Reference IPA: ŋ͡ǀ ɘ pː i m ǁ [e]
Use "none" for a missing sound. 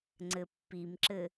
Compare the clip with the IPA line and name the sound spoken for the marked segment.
ɘ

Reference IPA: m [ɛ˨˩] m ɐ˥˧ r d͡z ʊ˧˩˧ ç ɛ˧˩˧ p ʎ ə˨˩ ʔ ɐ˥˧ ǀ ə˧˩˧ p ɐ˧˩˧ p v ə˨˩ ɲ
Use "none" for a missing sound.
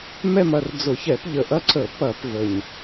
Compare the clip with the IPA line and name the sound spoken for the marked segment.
ɛ˥˧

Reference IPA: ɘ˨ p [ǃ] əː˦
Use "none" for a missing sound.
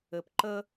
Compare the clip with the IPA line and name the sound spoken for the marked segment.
ǃ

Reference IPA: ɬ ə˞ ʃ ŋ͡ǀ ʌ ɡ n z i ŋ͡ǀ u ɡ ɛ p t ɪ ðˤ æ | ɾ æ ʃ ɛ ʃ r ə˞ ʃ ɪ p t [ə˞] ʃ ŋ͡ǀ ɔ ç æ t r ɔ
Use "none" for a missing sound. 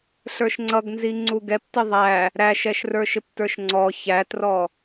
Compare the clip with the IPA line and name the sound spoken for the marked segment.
ə˞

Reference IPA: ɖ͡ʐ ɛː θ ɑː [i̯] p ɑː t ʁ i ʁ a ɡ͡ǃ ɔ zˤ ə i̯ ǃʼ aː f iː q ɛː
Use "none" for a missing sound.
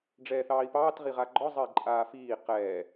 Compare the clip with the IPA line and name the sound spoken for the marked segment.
i̯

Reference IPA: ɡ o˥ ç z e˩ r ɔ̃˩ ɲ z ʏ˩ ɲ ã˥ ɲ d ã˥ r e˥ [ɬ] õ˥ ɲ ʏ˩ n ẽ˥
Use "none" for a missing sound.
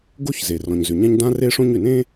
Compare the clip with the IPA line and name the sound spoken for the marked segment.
ʂ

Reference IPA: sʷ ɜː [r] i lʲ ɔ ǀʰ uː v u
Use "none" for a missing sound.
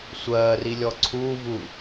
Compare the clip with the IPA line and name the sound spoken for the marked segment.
r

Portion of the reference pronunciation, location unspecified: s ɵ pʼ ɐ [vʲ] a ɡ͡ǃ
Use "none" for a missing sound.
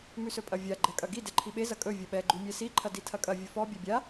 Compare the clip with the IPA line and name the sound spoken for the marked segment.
vʲ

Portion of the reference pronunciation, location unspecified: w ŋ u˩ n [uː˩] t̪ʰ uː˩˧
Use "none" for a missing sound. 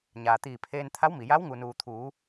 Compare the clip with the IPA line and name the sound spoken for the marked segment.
uː˩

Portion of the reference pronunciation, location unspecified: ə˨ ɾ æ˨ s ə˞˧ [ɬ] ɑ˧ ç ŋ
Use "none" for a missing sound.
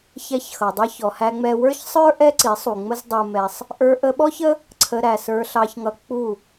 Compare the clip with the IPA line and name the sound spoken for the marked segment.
ɬ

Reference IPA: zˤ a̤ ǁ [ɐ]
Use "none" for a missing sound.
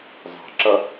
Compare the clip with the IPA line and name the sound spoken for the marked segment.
ɐ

